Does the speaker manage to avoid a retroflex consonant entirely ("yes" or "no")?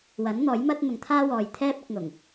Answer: yes